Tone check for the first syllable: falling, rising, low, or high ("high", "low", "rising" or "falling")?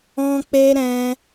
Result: high